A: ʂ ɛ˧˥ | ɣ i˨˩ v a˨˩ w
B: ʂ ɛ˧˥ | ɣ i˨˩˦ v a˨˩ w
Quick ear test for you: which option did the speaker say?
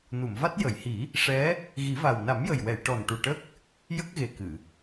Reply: B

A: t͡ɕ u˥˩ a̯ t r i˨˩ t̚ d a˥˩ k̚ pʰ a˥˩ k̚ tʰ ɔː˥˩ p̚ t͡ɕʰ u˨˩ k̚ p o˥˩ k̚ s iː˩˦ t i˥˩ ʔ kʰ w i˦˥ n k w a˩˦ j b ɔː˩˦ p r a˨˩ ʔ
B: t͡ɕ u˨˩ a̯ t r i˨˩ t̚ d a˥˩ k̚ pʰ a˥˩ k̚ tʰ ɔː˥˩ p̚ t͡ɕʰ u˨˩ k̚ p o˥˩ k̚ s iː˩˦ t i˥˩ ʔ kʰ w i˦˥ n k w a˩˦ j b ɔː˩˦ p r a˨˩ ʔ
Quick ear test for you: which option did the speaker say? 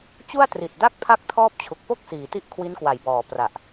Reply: A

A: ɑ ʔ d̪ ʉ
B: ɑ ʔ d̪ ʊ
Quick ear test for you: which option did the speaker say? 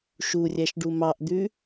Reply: A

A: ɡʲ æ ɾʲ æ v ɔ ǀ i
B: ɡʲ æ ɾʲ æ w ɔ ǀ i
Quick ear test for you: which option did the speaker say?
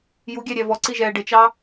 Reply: A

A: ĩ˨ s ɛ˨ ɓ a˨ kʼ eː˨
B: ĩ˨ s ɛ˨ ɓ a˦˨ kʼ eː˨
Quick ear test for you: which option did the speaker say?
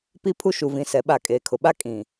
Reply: B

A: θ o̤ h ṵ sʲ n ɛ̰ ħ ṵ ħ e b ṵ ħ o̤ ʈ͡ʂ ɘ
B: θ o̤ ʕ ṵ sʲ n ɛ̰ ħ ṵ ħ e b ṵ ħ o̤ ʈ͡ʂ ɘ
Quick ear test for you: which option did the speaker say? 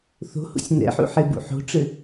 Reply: A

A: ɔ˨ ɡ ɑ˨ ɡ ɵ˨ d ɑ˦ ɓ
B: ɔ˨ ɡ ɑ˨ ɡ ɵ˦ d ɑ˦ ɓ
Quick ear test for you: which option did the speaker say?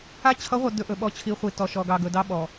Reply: A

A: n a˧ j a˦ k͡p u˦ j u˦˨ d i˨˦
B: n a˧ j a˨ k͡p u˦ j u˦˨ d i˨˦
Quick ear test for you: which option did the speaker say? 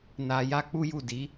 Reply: A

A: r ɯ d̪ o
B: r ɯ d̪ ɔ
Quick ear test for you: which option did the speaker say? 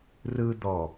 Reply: B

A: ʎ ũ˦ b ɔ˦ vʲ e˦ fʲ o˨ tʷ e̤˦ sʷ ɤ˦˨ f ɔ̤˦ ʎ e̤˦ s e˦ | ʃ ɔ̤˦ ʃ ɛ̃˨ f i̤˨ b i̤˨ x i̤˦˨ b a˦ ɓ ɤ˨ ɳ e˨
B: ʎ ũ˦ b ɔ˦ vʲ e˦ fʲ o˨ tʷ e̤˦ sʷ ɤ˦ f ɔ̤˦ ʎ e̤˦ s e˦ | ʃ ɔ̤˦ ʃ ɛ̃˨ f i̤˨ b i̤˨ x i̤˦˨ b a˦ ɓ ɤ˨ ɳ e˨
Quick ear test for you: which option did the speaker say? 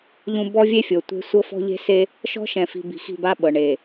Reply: B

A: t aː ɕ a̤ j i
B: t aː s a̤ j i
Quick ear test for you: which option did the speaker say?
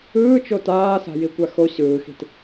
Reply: B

